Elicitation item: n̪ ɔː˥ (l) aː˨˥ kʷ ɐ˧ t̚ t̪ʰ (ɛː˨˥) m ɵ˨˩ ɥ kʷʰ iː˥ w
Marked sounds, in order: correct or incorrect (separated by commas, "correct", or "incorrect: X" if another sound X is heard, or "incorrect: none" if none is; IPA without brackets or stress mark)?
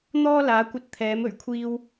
correct, correct